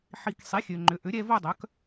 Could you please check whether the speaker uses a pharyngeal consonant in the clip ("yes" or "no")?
yes